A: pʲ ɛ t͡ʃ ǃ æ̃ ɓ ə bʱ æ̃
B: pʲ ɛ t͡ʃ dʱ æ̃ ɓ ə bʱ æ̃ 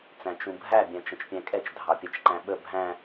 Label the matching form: A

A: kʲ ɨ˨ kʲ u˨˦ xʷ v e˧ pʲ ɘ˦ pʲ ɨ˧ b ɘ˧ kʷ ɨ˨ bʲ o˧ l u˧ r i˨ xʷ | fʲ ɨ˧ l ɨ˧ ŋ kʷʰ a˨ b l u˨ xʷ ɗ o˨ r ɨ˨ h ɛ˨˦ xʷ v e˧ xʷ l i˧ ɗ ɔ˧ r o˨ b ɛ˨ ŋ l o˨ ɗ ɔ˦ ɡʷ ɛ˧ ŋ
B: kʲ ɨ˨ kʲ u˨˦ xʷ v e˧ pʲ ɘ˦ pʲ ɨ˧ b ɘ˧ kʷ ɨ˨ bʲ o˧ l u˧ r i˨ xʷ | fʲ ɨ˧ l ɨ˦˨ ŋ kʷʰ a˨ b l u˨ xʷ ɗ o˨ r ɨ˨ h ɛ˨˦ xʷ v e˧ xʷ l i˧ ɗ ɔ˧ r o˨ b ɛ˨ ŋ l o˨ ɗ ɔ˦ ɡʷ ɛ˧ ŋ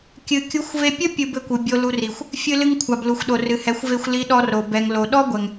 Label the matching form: A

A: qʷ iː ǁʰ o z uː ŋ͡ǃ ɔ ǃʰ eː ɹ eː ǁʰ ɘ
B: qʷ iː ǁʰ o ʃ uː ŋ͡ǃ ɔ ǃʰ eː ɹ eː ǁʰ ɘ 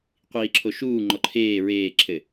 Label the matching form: B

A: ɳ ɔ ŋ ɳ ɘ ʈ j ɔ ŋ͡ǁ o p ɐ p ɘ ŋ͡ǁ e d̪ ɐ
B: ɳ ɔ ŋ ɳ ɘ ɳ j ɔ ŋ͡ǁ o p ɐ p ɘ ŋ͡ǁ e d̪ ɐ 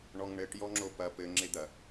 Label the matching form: A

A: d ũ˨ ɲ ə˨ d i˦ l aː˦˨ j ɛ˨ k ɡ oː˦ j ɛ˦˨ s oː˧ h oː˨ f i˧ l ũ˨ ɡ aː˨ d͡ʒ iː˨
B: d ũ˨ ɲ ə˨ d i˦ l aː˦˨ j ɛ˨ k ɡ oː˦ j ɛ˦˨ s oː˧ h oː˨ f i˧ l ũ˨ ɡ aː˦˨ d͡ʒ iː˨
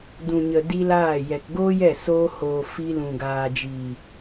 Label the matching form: A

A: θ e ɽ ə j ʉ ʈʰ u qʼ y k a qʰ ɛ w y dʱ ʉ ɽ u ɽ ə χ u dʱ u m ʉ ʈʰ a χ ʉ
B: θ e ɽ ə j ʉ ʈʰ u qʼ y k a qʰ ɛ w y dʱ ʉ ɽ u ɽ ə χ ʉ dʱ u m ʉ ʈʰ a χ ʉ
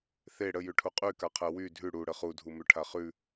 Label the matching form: A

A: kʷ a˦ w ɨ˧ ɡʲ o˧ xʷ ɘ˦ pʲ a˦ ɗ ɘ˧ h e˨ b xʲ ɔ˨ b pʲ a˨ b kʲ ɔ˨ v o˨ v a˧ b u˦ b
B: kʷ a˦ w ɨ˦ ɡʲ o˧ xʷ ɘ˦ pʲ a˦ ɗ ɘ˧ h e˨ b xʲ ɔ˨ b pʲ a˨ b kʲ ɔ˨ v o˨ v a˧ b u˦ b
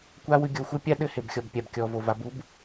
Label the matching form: A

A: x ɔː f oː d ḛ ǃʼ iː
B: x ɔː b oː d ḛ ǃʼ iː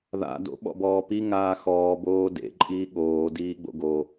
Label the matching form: B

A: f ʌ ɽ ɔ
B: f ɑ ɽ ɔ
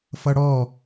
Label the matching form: A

